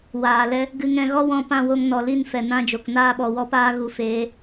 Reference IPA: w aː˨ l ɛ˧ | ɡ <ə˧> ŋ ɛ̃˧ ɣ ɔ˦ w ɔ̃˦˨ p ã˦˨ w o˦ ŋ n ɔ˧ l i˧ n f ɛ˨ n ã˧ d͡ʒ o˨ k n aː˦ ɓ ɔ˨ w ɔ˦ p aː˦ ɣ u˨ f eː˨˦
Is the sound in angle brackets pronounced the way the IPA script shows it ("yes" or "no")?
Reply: no